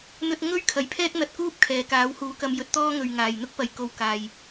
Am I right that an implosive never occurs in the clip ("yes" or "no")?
yes